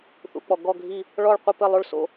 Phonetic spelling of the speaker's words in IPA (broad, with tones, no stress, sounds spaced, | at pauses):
θ ṵ˨˩˦ k͡p ɔ˨˩˦ ɡ ɔ˥˨ ɡʱ i˥˨ | ɭ ɔ˥˨ ɭ qʷ ɘ˥˨ p ɘ˥˨ lˠ o˥˨ ɭ s o̰˥˨